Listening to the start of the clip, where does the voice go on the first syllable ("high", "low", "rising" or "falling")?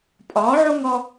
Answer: rising